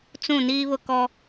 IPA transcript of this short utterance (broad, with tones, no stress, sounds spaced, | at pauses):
t͡s ũ˦˨ n iː˦ β ʊ˦˨ k ɔ˦